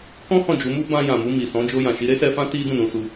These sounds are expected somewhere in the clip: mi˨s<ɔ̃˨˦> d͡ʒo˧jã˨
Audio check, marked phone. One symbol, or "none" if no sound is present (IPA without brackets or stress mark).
ɔ̃˨˦